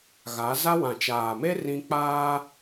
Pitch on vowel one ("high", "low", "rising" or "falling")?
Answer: rising